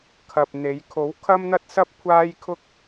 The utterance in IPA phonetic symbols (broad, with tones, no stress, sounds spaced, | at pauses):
kʰ ɐ˨ p̚ n̪ e˨˧ j kʰ o˨˥ w kʰ ɐ˥ m n̪ ɐ˥ t̚ s ɐ˥ p̚ kʷʰ aː˥ j kʰ ʊ˥ k̚